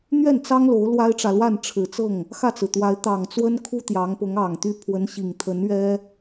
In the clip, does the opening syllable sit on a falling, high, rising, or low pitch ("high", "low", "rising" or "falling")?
falling